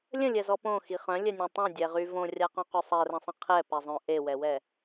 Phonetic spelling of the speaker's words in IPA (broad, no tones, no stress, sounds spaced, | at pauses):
lʲ ə̃ lʲ ɛ z ɔ p õ x i χ œ̃ lʲ ɛ nʲ õ tˤ õ dʲ ɛ ʁ y v õ rʲ a q õ q y sˤ ɛ r ə̃ sˤ ə̃ qʰ ɛ p ɛ zˤ œ̃ ʔ e w ɛ w ɛ